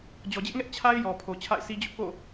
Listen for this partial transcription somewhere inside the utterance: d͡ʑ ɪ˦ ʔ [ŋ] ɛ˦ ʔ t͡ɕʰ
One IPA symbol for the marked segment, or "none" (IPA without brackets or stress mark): ŋ